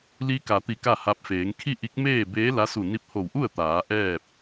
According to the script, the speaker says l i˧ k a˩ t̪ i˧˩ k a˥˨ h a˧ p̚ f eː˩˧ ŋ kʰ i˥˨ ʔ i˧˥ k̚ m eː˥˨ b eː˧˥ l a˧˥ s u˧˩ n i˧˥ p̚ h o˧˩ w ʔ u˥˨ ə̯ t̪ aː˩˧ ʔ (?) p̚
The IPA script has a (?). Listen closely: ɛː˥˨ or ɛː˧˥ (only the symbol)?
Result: ɛː˥˨